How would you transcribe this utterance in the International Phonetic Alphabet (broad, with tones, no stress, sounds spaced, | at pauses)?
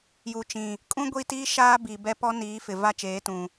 j u˨ t͡ʃ ĩ˨ | kʼ ũ˦ ɡʷ i˦ t iː˦ ʃ aː˦ b i˨ b ɛ˦ p ɔ˦ n iː˨˦ f ɪ˨ v a˦ t͡ʃ eː˨˦ t ũ˨